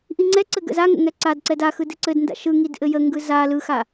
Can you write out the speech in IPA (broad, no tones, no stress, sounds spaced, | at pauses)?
ʔ i ŋ͡ǀ ɛ ǀ ɘ ɡ ə̰ z a ŋ ə̰ ŋ ɛ ǀ a d ǀ ɛ d a x ɯ d ɘ ǀ ɘ d n d a̰ ʃ ɯ ŋ i d ʔ ɘ j ə ŋ ɡ ɯ z a l ɯ x a